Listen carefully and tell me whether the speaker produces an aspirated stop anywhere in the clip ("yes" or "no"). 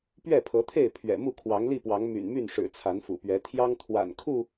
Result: yes